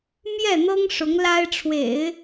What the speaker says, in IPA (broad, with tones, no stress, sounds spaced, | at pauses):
m j ɛ˥˩ n̪ ɤ˥ ŋ ʂ ʊ˧˥ ŋ l a˥ ɪ̯ ʈ͡ʂʰ w ḛ˨˩˦ ɪ̯